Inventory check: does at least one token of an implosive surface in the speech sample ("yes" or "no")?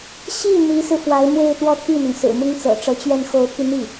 no